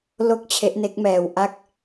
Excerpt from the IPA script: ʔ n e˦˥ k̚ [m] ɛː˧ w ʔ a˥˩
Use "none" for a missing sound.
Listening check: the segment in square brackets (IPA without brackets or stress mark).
m